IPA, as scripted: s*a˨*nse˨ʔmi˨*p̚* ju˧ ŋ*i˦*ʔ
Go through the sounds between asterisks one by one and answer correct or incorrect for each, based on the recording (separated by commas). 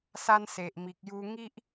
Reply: incorrect, incorrect, correct